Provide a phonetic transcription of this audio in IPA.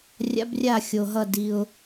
rʲ a̰˦˥ b rʲ a˥˩ xʲ o˨ ɦ ʌ˥˩ d i˨ ʊ̯

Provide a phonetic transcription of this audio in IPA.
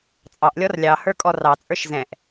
t͡sʼ ɑ ʔ lʲ ɔ r lʲ ɑ h ə˞ kʼ ɔ r ɑ t͡sʼ ə˞ ʃ z ɛ̃ ʔ

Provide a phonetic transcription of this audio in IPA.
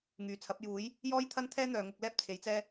ŋ yː˨˩ t͡sʰ ɐ˨˥ p̚ j uː˨˥ j | j ɔː˥ j t̪ʰ ɐ˥ n t̪ʰ ɛː˥ n̪ œː˨ ŋ ʊ˧ k̚ l ɛː˥ p̚ t͡sʰ e˨˥ j t͡s ɛː˥

